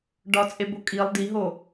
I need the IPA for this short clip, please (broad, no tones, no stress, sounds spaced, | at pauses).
ɖ ɒ t͡sʼ e b o kʼ i lˠ d i ɦ o